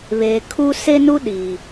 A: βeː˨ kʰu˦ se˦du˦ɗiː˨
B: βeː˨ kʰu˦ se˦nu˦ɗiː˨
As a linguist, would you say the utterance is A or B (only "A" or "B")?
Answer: B